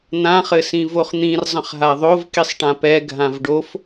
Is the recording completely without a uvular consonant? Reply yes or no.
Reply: no